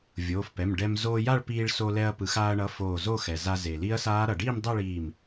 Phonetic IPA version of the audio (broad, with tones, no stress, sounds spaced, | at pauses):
vʲ oː˩˧˩ f p ɛ˩˧˩ m ɖ ɛ˧ m z oː˧ j a˥˧ ɭ p iː˧ ɭ s o˧ l ɛ˧ ɐ̯ p ɯ˩ x aː˧ ɐ̯ ɳ ʌ˩˧˩ f oː˧˩ z o˥˧ x ɛ˩ z a˧ z e˩ l i˦˥ ɐ̯ s aː˦˥ ɾ ʌ˩ ɖ iː˥˧ m dˤ ʌ˥˧ ɭ iː˧˩ m